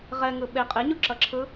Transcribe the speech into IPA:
ʁ ɛ ŋ ɯ ɓ e qʼ e ɲ u ǁ ʌ ǁʰ ɯ

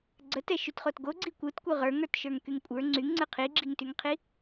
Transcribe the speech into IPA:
ɡ͡ǀ ə t ɛ ʃ y t χ o t ɡ o ɡ͡ǀ i kʷ ɯ t kʷ ɯ ʁ ə˞ ŋ ə˞ t ʃ ə˞ ŋ k y ŋ kʷʼ ə˞ ŋ͡ǀ y ŋ ŋ͡ǀ ɯ qʰ i ɡ͡ǁ i ŋ t y ŋ qʰ i

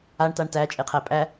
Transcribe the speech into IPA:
a ɳ t a ɳ t æ t͡ʃʼ e qʰ æ pʼ æ

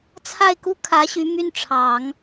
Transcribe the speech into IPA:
t͡sʰ a˥˩ ɪ̯ k u˥ kʰ ä˧˥ ɕ y˧˥ m y˥˩ n ʈ͡ʂʰ ɑ˨˩˦ ŋ

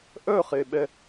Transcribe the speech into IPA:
ʔ œ χ e ɓ ɛ

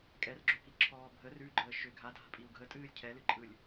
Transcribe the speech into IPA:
kʼ ɛ r ɡ͡ǁ o k i ǁʰ ɔː bʱ ə r ʉ ɡ͡ǃ əː ʃ ʏ ɡʱ a dʱ a̤ pʼ i u̯ ɡʱ ə tʼ ɨː lʲ cʰ ɛ l ɨ ǃʼ ɯ lʲ

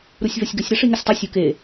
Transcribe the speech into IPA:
ɾ u sʲ v ɐ sʲ ɡ ə sʲ ɾ ɐ ʂ i ŋ ə sʲ tˤ ɐ sʲ u k e

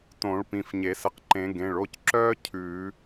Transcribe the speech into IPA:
t õ˨˩˦ ɭ p ĩ˩˧˩ f ɲ e˨˩˦ s ə˧˩ q ǃ ẽ˨˩˦ ɡ ẽ˩˧˩ ɭ o˥˧ c ǁ œː˥ cʰ ʉː˨˩˦

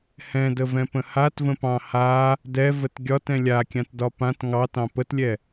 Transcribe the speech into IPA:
h ɛ̃ d ə v ɛ̃ p ə̃ h a t v ə̃ p ɑ̃ h a | d ɛ v ə t ɡʲ ɒ t ɛ̃ lʲ a kʲ ã t d ɒ p ã t ŋ ɑ t ɑ̃ p ə t lʲ ɛ

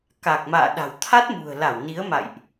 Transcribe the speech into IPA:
k a˨˩ k̚ m a̰ː˧˨ ɗ a̤˨˩ w t̪ʰ a˦˥ t̚ m ṳ˨˩ ə̯ l a˧˩ w n i˨˦ ə̯ m a̰˧˨ j ʔ

